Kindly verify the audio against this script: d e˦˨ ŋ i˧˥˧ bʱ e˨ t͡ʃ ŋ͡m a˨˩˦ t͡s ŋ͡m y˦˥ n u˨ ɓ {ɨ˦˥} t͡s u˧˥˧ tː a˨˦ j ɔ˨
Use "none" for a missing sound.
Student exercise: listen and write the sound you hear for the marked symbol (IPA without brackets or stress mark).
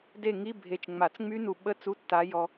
ə˦˥